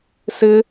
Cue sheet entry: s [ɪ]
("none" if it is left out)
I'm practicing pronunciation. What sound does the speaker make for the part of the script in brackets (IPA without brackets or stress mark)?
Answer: ɪ